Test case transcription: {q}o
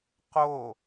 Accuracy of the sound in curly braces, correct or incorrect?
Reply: correct